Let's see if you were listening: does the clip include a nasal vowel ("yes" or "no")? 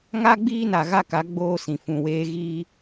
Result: yes